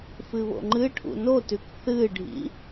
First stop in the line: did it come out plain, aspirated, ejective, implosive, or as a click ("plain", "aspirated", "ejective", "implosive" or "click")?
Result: click